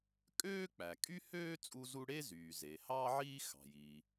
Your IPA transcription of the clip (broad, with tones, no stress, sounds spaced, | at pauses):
kʼ øː˥ k͡p æ˩ kʼ y˥ h øː˥ t͡sʼ u˥ z u˥ ɽ e˥ z yː˩ z e˩ h ɑː˥ ʕ iː˥ x ɑ̤˩ j i˩